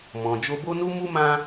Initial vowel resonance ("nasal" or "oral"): nasal